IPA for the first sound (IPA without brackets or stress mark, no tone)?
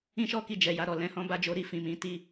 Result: ĩ